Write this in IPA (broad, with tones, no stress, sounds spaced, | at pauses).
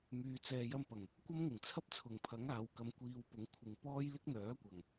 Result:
m yː˧ t͡s ɛː˧ j ɐ˥ m p ɐ˨˩ ŋ | kʷ ɐ˥ m ŋ ɪ˨˩ ŋ t͡sʰ ɐ˥ p̚ t͡sʰ ʊ˨˩ ŋ pʰ ɐ˨˥ ŋ aː˨˧ w k ɐ˧ m kʷ iː˧ w p ʊ˨˥ ŋ kʷʰ ɪ˧ ŋ p ɔː˥ j l ɪ˥ k̚ n̪ œː˨˥ kʷ ɐ˨˩ ŋ